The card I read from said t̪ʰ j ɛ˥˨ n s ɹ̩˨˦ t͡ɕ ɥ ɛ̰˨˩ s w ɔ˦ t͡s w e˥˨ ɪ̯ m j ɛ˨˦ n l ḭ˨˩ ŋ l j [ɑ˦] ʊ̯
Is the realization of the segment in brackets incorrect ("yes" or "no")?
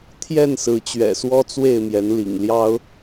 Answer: no